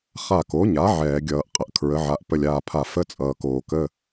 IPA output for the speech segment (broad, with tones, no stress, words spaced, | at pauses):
χa˧˩ko˩˥ɲa˩˥ ʕɛː˧˩˧ɡʲʌː˧˩˧ʔ qʼə˩ʔ kʰɹə˩˥ʕa˩˥ʔ pə˧˩lʲaː˧˩pʰa˧˩ fə˧˥˧t͡sʼʌː˩koː˩ kə˧˥˧